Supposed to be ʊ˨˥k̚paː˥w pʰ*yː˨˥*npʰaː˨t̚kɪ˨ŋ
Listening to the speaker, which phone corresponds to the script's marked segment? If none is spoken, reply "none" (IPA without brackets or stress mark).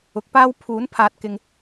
uː˨˥